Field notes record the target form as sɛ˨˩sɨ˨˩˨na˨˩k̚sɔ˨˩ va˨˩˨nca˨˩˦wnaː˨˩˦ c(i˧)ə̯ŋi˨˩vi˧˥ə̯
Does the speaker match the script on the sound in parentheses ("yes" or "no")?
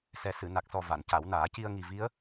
yes